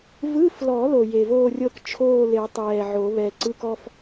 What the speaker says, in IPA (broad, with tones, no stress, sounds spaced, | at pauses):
v ɯ˧˥˧ f l ɔ˨˩˦ l o˨˩ j e˨˩ v oː˥˧ rʲ ɤ˥˧ k t͡ʃʰ oː˥˧ l e˨˩˦ tˤ ɛː˨˩ ʕ o˨˩˦ β ɛ˨˩ ǀ ɯ˧˥˧ k ɔ˥˧ f